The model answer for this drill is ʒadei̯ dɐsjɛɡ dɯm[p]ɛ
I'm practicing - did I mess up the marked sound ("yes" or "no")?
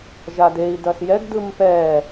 no